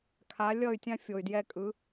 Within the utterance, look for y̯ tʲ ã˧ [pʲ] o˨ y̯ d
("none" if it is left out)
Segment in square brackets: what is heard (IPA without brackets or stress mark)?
fʲ